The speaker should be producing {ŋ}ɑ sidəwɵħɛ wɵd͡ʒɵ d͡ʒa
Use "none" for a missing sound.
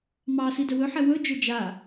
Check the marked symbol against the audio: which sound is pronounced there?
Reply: m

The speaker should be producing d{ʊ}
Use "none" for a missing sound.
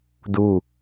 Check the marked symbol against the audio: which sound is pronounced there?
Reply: u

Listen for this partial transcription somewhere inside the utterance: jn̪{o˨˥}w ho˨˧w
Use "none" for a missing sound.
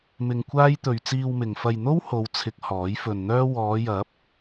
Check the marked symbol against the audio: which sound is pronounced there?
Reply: o˥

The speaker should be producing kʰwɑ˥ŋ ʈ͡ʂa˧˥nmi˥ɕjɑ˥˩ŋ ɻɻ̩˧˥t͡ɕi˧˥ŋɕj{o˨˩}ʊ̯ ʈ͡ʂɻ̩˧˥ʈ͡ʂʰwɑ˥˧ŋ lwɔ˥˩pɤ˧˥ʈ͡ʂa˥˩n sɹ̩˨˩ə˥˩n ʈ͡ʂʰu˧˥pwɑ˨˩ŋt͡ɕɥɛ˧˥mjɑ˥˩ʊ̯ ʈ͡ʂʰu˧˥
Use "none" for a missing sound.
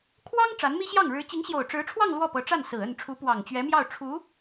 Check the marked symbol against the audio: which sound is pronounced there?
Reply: o˨˩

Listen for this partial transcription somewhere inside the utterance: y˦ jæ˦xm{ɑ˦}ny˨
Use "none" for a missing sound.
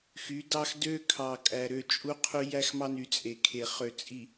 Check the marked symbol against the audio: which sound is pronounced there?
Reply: ɑ˦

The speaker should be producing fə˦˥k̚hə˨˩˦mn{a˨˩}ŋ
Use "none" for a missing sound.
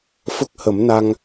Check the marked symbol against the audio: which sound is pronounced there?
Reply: a˧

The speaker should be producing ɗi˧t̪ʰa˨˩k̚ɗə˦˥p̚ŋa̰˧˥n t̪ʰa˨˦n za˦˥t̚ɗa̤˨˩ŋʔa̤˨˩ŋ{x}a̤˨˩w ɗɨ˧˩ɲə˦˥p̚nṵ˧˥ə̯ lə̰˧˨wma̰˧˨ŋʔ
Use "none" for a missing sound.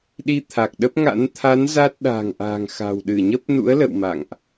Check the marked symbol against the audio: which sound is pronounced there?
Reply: x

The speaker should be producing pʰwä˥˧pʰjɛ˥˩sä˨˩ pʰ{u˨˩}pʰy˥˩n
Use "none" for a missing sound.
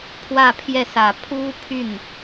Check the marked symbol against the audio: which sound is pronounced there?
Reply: u˥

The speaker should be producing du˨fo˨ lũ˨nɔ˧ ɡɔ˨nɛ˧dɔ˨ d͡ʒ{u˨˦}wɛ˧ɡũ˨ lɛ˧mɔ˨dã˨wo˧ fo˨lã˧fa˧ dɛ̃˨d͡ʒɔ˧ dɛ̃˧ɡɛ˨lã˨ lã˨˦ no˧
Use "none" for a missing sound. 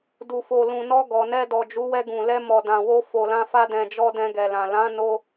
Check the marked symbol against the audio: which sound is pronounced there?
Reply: u˨˦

